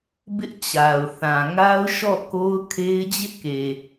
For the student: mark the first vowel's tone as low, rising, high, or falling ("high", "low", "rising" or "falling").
high